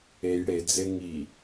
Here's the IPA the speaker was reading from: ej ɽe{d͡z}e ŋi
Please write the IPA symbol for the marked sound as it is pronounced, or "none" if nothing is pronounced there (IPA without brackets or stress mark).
d͡z